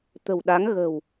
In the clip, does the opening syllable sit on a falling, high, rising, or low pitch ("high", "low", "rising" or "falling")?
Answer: low